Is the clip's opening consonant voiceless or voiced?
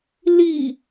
voiced